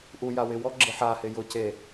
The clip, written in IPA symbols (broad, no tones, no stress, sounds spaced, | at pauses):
ʔ u j a w ɪ w ɔ ɡ͡ǁ e ħ a h ɪ j ʊ c e